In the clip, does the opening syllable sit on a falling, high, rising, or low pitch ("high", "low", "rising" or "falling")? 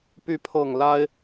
rising